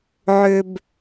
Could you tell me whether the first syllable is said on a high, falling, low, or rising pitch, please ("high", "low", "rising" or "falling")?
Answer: low